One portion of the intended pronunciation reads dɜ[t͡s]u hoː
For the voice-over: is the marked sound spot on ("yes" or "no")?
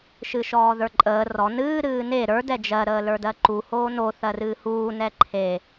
no